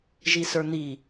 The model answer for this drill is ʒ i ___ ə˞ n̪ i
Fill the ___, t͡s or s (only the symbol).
s